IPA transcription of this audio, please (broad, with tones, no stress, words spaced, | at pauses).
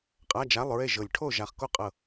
qʼa˧˥˧d͡ʒa˧˥˧lˠɹe˥˩ ʒɤ˧˩lʲ ʈʰo˥˩ ʒa˧˩χko˥˩qʼɤ˧˩